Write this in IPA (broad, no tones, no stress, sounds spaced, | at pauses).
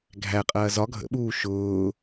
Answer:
ɡʱ æ qʼ ɐː z ɒ ɡʱ ə̰ ɓ uː ʃ ʊː